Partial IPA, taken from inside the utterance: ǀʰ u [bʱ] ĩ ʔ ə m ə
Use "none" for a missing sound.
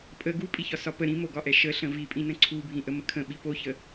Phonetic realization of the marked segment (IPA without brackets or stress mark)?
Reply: bʱ